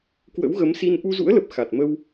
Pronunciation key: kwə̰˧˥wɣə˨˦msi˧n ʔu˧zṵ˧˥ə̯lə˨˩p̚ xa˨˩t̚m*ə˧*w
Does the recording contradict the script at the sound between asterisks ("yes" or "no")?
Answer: no